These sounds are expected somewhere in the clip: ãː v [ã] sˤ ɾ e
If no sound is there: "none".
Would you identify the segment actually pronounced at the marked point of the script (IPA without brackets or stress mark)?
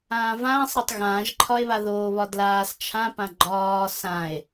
ãː